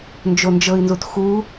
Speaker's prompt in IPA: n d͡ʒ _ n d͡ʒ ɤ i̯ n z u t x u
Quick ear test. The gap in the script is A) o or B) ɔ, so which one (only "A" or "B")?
A